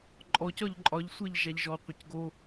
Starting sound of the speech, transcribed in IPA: ǃʼ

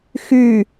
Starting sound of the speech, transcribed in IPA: x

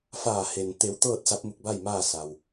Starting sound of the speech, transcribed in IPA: f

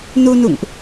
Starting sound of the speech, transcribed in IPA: n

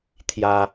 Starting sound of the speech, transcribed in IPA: t̪ʰ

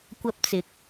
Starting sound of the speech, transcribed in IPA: kʷ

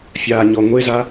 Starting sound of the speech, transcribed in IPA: fʲ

